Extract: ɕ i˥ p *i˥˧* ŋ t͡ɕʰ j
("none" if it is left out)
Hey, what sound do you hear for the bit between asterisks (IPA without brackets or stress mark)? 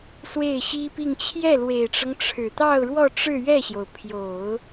i˥˧